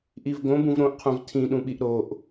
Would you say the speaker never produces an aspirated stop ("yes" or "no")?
no